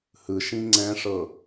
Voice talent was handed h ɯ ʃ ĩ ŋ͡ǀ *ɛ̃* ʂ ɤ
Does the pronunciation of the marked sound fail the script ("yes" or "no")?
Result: no